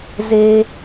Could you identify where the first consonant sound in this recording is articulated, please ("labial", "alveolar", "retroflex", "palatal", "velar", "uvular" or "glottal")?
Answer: alveolar